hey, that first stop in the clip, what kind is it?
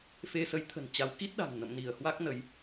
aspirated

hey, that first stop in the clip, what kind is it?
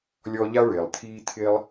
aspirated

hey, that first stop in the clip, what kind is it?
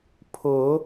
aspirated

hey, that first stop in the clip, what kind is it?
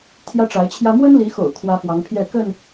aspirated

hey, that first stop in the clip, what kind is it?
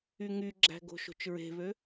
click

